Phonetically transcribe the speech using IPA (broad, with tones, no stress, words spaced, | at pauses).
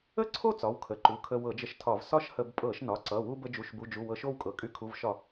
ə˥˧ǀʰo˥˧ t͡sɒ˩˧˩wkʰə˩˧˩ǃu˩˧˩ kʰə˧wɤ˧˩˧d͡ʒə˧ʃtʰɒ˧˩˧v sɒ˥˧ʃhə˧˩˧b pʼɤ˧˩˧ʃnɒ˩˧˩ǀʌ˩˧˩wu˧ bə˧d͡ʒu˩˧˩ʃbu˩˧˩d͡ʒu˩˧˩ wɤ˧ʃo˥˧wkʼɤ˩˧˩ kʼy˧˩˧kʰu˩˧˩vʃɒ˧˩˧